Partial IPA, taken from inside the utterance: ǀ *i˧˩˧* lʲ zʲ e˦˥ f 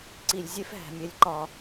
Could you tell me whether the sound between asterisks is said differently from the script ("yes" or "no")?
no